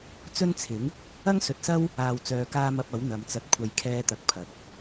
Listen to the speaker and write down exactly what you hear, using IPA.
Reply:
t͡s ɵ˥ n t͡sʰ ɪ˨˥ ŋ | ɐ˥ ŋ s ɵ˨ t̚ s ɐ˥ w | aː˨ w t͡s œː˨ k aː˥ m ɐ˧ p̚ ɐ˨˥ w n̪ ɐ˨˧ m t͡s ɐ˧ t̚ kʷʰ ɐ˧ j kʰ ɛː˥ t̪ ɐ˧ k̚ pʰ ɐ˨ k̚

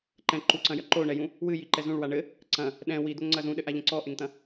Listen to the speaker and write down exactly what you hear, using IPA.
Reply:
ǃ ɛ̃ ǃ u ǀ ɐ̃ j ɐ ǃ o ɳ ɛ j ũ | w ɨ j i ǃ ɛ z ũ ɭ w a ɳ ɘ | ǀ ɐ̃ | ɗ ɛ̃ w i d̪ o ŋ ŋ͡ǀ ɐ z ũ ɗ ɘ ʔ a ʎ ɐ̃ ǀ ɔ ʔ e ŋ t̪ ɐ̃

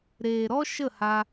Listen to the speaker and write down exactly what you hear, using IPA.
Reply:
ɾ eː˨ ɾ ɔ˦ ʃ ə˦˨ h a˧

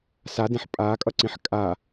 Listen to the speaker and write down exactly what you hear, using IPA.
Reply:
s a d ẽ ħ pʼ aː kʼ ʌ ǀ ĩ ħ kʼ a

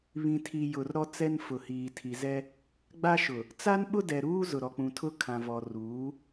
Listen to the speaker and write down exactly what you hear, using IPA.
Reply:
β ĩ˨ tʰ i˨ j ʊ˨ r ɾ ɔ˦ t͡s ɛ˦ n f ʊ˨ h iː˨ tʰ i˨ z ɛ˦ | ɡ͡b a˦ ʃ ʊ˨ | t͡s a˦ n ɓ ʊ˦ d ɛ˨ ɾ uː˦ z ʊ˨ ɾ ɔ˨ k͡p ũ˨ tʰ ʊ˦ kʰ ã˨ v ɔ˨ r uː˨˦

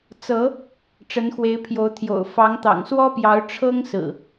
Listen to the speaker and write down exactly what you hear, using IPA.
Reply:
t͡s ɤ˨˦ | ʈ͡ʂ ə˨˦ n x w e˨˦ ɪ̯ pʰ j o˨˦ ʊ̯ t̪ʰ j o̰˨˩ ʊ̯ f ɑ˨˦ ŋ t̪ ɑ̰˨˩ ŋ s w ɔ˦ p j ɑ˨˦ ʊ̯ ʈ͡ʂʰ ɤ˦ ŋ s ɹ̩˨˩

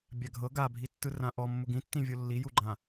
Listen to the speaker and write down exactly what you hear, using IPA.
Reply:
bʲ a ɡʱ ɤ ɡ a bʱ i tː ɯ r ã ʔ ɔ mː u ɡ ĩ tː ĩ vʲ o lː i j u ɡ͡ǃ ã

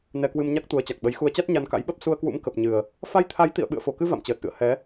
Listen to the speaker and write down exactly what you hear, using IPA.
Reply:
n ɛ˧ k w ɨ˧ m ɲ a˦˥ k̚ t̪ u˨˦ ə̯ t͡ɕ a˨˩ k̚ ɓ ə˨˦ j x u˨˦ ə̯ t͡ɕ a˦˥ t̚ ɲ a˧ n k a̰˧˥ j ɓ ə˦˥ p̚ s u˧ ə̯ k w ṵ˧˥ m k ə˨˩ p̚ ɲ ɨ˨˩ ə̯ | f a˧ j t̪ʰ a˨˦ j t̪ ḭ˧˨ ə̯ ɓ ɨ̰˧˨ ə̯ f o˨˩ k ɨ˧ v a̰˧˨ m t͡ɕ əː˨˩ t̚ ʔ ɨ̰˧˨ ə̯ h ɛ˨˦

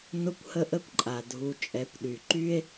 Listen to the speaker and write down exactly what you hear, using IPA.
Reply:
n ʊ˧ kʷ h ə˧ ʔ ə˧ kʷ ǃʼ a˨ dʱ u˧ t͡ʃʼ ɛ˨˦ kʷ ɗ y˨ ǃ y˦ e̯

